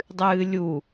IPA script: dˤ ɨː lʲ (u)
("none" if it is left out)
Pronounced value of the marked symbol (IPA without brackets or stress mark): u